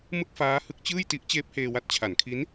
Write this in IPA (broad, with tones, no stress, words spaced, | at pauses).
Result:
mɯ˥˩k̚faː˦˥hɯ˦˥k̚t͡ɕɯː˥˩j ti˦˥ʔt͡ɕeː˦˥p̚heː˧wa˦˥t̚ t͡ɕʰa˩˦nkʰi˦˥n